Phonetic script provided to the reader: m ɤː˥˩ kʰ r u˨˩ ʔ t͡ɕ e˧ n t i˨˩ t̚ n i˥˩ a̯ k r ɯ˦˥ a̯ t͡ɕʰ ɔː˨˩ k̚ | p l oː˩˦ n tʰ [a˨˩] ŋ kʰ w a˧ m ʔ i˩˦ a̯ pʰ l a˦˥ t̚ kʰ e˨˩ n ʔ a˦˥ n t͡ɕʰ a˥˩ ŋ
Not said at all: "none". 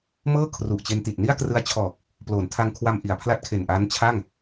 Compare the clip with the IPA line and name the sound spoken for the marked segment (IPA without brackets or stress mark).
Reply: a˧